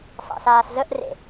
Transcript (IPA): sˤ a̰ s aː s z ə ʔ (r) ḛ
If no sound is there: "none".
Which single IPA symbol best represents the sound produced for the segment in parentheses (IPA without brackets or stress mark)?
r